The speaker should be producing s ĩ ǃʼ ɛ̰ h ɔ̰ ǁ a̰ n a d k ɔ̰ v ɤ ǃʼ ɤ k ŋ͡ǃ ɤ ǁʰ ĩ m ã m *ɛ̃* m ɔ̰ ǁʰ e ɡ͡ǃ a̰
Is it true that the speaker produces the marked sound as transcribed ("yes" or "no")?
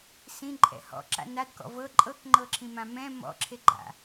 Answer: yes